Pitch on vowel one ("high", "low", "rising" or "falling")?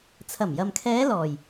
low